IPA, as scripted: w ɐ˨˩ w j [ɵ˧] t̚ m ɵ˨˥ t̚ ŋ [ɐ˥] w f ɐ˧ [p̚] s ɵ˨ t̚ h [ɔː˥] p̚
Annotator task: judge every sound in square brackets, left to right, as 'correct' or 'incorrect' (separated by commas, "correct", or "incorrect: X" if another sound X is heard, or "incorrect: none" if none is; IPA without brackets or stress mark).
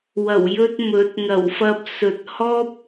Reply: correct, incorrect: ɐ˨˩, correct, correct